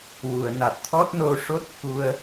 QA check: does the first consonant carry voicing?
yes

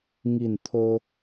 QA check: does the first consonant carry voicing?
yes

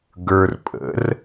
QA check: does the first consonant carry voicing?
yes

